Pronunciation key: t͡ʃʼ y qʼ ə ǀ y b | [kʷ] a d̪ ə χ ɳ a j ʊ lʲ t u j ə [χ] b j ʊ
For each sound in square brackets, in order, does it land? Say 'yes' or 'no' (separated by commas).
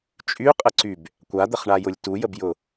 yes, no